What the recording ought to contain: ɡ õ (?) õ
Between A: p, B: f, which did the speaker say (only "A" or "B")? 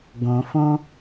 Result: B